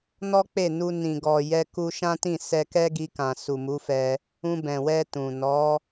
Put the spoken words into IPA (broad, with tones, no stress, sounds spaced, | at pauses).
n ɔ˦ k͡p e˦˨ n u˧ n ĩ˨ ɡ ɔ˨ j ɛ˧ k u˧ ʃ ã˦ t ĩ˦˨ s ɛ˧ k ɛ˦ ɡ i˧ k ã˨ s u˨ m u˨˦ f ɛ˧ | ũ˧ b ɛ̃˨ w ɛ˧ t ũ˨ n ɔ˨˦